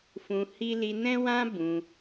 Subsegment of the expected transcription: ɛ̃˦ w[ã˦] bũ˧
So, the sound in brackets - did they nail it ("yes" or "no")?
yes